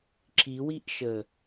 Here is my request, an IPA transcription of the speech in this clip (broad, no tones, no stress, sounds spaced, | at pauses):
ǁ i w i ʔ ʃ ə